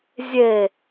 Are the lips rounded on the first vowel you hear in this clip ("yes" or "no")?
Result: no